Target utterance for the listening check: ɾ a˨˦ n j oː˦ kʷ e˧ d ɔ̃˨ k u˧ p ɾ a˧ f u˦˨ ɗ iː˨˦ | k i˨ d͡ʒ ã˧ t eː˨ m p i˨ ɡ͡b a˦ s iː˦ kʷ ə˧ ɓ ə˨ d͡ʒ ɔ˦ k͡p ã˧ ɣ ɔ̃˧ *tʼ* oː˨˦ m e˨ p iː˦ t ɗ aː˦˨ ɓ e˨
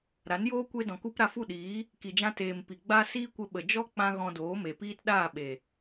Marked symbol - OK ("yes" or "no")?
no